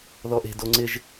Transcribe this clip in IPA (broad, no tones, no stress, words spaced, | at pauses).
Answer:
ðɔʔe̤ doŋ͡ǀɪʒ